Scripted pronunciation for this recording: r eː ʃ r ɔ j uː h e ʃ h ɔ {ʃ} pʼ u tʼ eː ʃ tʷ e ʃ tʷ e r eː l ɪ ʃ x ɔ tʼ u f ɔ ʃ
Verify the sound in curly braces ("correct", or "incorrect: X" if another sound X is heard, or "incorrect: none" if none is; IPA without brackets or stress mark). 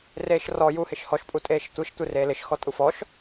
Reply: correct